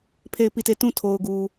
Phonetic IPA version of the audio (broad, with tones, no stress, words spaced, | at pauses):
pʰe˦˨ɪ̯pi˦˨te˦˨ tũ˦˨tʰo˨ʊ̯ ɡu˨